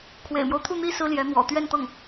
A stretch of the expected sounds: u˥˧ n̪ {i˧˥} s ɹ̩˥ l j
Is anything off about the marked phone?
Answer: yes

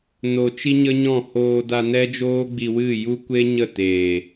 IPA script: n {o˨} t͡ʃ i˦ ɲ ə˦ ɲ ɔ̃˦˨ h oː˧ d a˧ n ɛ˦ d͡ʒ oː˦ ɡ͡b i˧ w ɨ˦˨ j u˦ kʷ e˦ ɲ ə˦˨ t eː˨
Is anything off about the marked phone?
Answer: yes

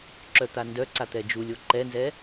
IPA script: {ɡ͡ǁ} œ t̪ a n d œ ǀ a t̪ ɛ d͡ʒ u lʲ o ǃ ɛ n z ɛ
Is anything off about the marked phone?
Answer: yes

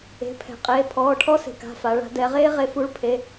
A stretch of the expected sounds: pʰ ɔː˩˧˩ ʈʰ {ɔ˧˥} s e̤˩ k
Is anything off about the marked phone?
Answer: no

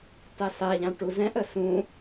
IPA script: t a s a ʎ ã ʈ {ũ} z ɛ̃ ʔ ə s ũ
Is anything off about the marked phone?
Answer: yes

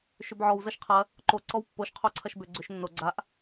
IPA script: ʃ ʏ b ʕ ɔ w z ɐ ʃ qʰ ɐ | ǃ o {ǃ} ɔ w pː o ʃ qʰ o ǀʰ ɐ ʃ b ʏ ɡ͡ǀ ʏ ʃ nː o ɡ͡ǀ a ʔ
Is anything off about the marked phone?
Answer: yes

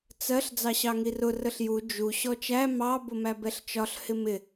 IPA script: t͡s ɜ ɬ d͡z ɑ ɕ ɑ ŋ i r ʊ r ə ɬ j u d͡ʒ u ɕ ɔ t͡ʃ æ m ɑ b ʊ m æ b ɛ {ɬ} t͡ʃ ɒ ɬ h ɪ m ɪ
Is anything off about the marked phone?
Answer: no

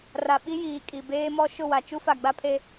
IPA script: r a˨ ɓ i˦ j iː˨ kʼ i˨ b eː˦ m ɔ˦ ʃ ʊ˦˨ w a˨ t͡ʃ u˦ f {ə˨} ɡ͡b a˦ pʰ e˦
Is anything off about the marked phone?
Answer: yes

